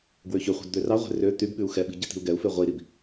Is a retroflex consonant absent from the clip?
yes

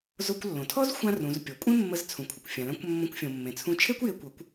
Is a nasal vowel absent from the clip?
no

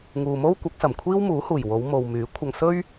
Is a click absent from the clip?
yes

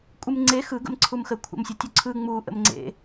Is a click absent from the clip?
no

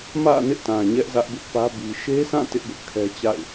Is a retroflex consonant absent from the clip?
yes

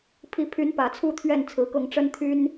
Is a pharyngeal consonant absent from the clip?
yes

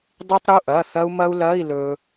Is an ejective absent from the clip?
yes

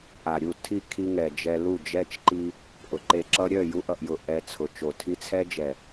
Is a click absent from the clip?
no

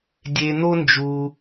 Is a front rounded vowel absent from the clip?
yes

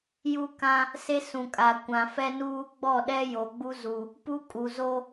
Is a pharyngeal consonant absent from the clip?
yes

